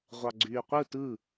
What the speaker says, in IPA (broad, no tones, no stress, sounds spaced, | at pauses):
ʁʷ ɑ ɡ͡ǀ yː qʷ ɯ t ɯ